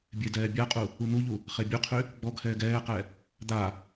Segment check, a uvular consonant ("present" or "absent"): present